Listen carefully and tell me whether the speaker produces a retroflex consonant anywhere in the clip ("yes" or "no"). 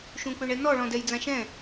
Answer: yes